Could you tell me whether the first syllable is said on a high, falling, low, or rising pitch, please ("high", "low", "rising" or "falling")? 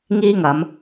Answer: high